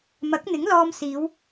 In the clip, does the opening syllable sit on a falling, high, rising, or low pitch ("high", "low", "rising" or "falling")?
rising